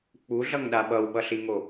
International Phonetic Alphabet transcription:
k͡p u ɮ ʌ ŋ ɗ a ɓ ʌ w ɓ ʌ ɬ i ŋ o

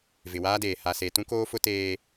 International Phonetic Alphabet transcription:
v ɪ˨ w aː˦ d eː˨ h a˨ s e˨ t ũ˦ k oː˦ f ʊ˦ t eː˦

